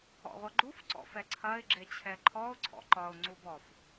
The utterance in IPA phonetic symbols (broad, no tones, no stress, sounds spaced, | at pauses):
ɔ̰ ʁʷ ɐ ɡ͡ǃ u f ǀ ɔ̰ f ɛ ǀʰ ɐ ɪ̯ ɡ͡ǁ e t͡ɕʰ ɛ ǃʰ ɔ ʊ̯ ǀʰ ɔ̰ ǃ ɒ ʊ̯ ŋ͡ǀ u b ɔ f